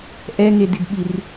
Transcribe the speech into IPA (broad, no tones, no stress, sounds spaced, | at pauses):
ʔ ɛ ŋ e d i d ɓ i r